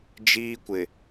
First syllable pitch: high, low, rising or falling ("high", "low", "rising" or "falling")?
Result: high